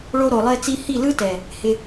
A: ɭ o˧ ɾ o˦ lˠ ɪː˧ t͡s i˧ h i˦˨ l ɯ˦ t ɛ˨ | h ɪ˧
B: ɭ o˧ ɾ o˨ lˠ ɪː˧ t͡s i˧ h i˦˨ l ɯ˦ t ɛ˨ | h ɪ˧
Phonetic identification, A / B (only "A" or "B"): B